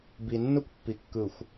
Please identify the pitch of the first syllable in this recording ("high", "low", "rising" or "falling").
low